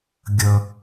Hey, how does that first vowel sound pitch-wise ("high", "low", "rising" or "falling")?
low